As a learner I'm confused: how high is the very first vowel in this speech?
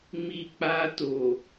high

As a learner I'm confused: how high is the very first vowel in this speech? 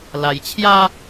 low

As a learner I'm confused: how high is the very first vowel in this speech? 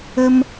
mid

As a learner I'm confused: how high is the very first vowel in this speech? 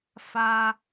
low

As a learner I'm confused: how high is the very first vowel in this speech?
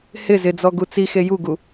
high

